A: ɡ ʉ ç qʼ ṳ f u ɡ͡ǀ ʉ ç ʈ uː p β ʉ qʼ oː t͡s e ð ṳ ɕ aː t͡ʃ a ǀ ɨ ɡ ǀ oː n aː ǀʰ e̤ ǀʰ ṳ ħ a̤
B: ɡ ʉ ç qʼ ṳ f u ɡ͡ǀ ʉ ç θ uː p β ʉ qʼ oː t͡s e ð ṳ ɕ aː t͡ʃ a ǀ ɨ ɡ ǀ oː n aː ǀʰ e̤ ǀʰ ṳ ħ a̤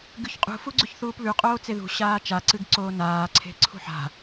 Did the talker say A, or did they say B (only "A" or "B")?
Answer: B